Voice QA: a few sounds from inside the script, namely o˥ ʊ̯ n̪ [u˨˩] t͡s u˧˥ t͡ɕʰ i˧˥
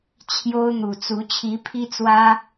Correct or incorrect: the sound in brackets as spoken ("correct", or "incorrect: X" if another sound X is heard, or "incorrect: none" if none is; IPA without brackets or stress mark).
correct